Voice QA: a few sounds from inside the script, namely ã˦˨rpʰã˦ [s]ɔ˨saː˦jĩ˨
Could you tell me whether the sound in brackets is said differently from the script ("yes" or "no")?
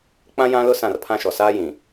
yes